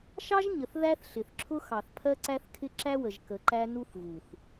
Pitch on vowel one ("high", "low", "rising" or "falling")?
high